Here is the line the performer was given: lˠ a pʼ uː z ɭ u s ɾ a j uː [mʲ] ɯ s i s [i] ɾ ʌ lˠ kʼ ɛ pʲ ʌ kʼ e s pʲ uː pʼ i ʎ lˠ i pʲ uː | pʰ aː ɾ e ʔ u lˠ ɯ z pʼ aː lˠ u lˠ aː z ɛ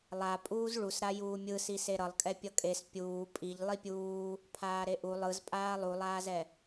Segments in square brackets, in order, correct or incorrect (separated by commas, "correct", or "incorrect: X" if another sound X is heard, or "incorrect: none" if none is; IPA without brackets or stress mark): correct, incorrect: e